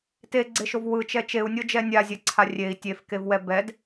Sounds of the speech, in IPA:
t e ɡ͡ǀ e ʃ o v w ɯ t͡ʃ ɛ t͡ʃ e u̯ nʲ ɤ d͡ʒ ɛ nʲ a zʲ ɛ ǀʰ a rʲ e i̯ tʲ e f k e v w ɛ b ɛ d

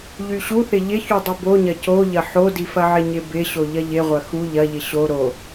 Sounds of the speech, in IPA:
ʎ y ɕ u θ ɪ ʎ ɪ ç u dˤ ɪ b o ɲ ɐ c o ʎ ɐ ħ o d i f ɐ ʕ ɪ ɲ ɪ b ɪ ɕ o ʎ ɐ ʎ ɪ ʁʷ ɐ x u ʎ ɐ ʎ ɪ ɕ o ɾ o

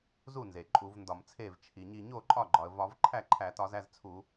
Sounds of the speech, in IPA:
z u˥˩ n z e˩ ǃʼ u˧˩˧ v n d ɒ˧˩˧ m t͡sʰ e˥˩ v t͡ʃʰ i˩ ɲ i˧˩ ɲ o˥˩ ǃʼ ɒ˥˩ ɡ͡ǃ ɒ˩ ə̯ v ɒ˧˩˧ v ǃʰ æ˥˩ ǃʰ æ˧˩˧ t ɒ˧˩˧ z æ˥˩ z t͡sʰ u˧˩˧

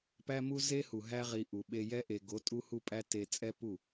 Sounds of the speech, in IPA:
p æ˦ m u˦ z e˦ h u˨ ɦ æ˧ ʁ i˨ ʔ u˨ ɓ e˧ j ɛ˦ ʔ e˨ ɡ o˨˦ tʼ u˦ h u˦ pʼ æ˦ t e˧ t͡sʼ ɛ˦ p u˦˨

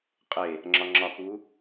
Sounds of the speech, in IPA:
qʼ e | ŋ͡ǁ ɒ ŋ͡ǁ ɒ k u

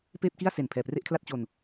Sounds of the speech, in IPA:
p eː˥˩ p̚ k i˥˩ a̯ s e˨˩ n pʰ ɛː˨˩ p r e˥˩ ʔ kʰ l a˥˩ t̚ t͡ɕ o˧ n

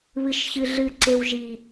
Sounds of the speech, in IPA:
β ɨ ʃ ç ɨ ɮ ɨ ǀ e w ʒ i

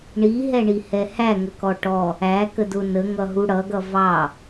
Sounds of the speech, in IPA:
ɳ i ɦ ɛ ɳ i h ɛ h æ ŋ ə k ɔ ʈ ɔ | æ k ə d ʊ n ə ŋ ʌ ɦ u ɽ ʌ ɡ ʌ v ɑ

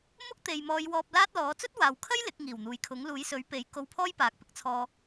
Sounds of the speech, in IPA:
m ʊ˥ k̚ t̪ e˨ j m ɔː˨˧ j w ɔː˧ p̚ l aː˥ t̚ l ɔː˨˥ t͡s ɵ˥ t̚ w aː˨ w kʰ ɐ˥ j l ɪ˨˥ k̚ ŋ iː˨˩ w n̪ uː˨ j kʰ ʊ˨˥ ŋ l uː˨˥ j s ɵ˨˥ ɥ p e˨˥ j k o˧ w pʰ ɔː˥ j p aː˨ k̚ p ɪ˥ k̚ t͡sʰ ɔː˧

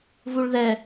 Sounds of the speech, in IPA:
v u ɭ ð ɛ

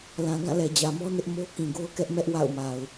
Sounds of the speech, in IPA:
l ã˨ ɡ ã˦˨ l ɛ˨ d͡ʑ ä˨ m ɔ˦ n ɪ˦ ʔ m o˦ k ĩ˨ ɡ o˦ ʊ̯ k ɛ˦ ʔ m ɛ˦ ʔ w a̰˦˨ ʊ̯ m a˨ ʊ̯

